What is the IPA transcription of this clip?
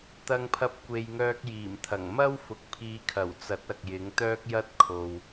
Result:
t̪ ɐ˧ ŋ pʰ ɐ˧ p̚ kʷ e˨ j ŋ œː˧ k̚ j iː˨˩ m t̪ʰ ɐ˨˩ ŋ m ɐ˥ w f ʊ˨ k̚ pʰ iː˨˧ kʰ ɐ˨˩ w t͡s ɐ˨˥ t̚ ɐ˨ k̚ j ɪ˨˥ ŋ t̪ œː˥ k̚ j ɐ˥ t̚ kʰ o˨ w

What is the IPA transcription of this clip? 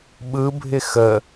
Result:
ɓ ɯ bʱ ɪ x ə

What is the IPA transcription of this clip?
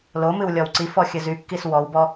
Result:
l o m ɨ w lʲ ɔ w ǀ i f ɔ xʲ ɨ z y kː i s w ɔ w b ɔ

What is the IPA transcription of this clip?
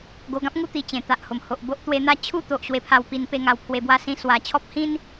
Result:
ɡ o˧ ɡ ã˦ p̚ ŋ u˥˧ t̪ i˧ t͡ɕ ẽ˨˩ t̪ a˨ ʔ h o˨˩ m h o˨ ʔ b o˦ ʔ t̪ w e˧ n̪ a˥˧ t͡ɕʰ u˥˧ t̪ o˨ ʔ ɕ w e˧ pʰ a˧ w p i˧ n p e˥˧ ŋ a˧ w pʰ w e˧ b w a˦ s ĩ˧ s w a˨˩ t͡ɕʰ ɔ˦ p̚ h ĩ˦ n

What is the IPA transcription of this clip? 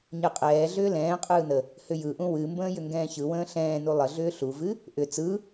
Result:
ɲ ɯ qʼ ɛː ɮ ʏː l ɛ̃ː qʼ ɯː n ə | h ʏ j ɯ ʔ ũ w ɨ m b ə̃ː j ʏ ŋ ɡ ɛ̃ː ç ɯ w ə̃ː ɬ ɛ̃ː n u lˠ ə ɮ ʏː ɬ u v ɨ | ʔ ʏ t͡s ɯ

